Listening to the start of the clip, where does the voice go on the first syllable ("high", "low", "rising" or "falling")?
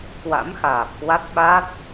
rising